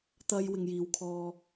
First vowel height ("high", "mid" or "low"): low